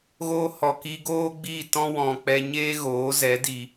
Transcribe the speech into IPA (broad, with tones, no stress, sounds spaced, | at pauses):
ɣ oː˧ h ɔ˨ k i˧ ɡ oː˦ ɡ͡b i˦˨ t ɔ̃˦ w ɔ̃˧ k͡p ɛ˧ ɲ eː˦ ɣ oː˨˦ z ɛ˨˦ d i˧